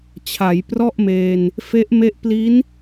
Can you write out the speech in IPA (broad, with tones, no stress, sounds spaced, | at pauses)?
t͡ɕʰ a˩˦ j p r ɔ˥˩ ʔ m eː˧ n | f e˦˥ ʔ m e˦˥ ʔ p l i˦˥ n